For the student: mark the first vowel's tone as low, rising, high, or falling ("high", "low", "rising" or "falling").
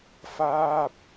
falling